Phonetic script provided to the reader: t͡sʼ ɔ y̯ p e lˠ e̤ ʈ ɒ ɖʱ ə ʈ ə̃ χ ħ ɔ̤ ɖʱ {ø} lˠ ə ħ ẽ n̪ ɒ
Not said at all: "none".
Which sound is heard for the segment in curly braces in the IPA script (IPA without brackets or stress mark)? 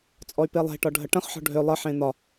ø